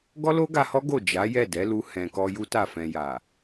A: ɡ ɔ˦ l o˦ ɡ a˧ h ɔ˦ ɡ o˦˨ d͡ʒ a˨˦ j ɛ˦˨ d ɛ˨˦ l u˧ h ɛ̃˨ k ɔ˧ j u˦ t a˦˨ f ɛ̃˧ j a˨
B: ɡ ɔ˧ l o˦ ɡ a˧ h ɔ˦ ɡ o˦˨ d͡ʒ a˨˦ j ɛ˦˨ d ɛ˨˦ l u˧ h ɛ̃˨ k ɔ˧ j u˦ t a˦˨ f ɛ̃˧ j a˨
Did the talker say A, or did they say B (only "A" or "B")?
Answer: A